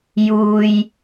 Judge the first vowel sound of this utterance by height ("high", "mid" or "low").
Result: high